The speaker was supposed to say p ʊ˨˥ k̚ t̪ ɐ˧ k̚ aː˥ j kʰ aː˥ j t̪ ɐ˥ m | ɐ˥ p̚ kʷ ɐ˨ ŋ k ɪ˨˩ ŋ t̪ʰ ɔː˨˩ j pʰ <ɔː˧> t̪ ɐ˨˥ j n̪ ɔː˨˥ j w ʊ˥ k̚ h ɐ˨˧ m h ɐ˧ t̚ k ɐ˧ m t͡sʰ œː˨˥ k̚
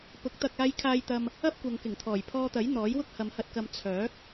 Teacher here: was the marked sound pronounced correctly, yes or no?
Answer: yes